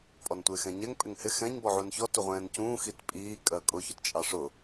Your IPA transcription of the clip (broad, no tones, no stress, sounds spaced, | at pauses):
pʼ ɔ n tʷ ɪː x ɛ̃ ɲ ɛ ŋ pʼ ɪ ŋ h ɪ x ɛ̃ ɲ b ɔ ʕ u n ç ɔ t u ʁʷ ɛ̃ː n c ũː x i t pʼ iː kʼ ɜ kʼ ʊ ç ʊ t t͡ʃʼ ɑ ʂ ʊ